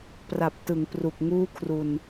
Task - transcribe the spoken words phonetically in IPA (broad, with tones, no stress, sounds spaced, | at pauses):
p r a˨˩ p̚ t ɯ˩˦ ŋ p r u˨˩ k̚ ŋ uː˥˩ kʰ r u˧ n